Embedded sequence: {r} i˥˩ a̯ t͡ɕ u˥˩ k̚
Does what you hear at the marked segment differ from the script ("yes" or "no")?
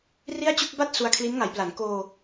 no